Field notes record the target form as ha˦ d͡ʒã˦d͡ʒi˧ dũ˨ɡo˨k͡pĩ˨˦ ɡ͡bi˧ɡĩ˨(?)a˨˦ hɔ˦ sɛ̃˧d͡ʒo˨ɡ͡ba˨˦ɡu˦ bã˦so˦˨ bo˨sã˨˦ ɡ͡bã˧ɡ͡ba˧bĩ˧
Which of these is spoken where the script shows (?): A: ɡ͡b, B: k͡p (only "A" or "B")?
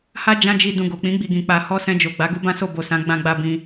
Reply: B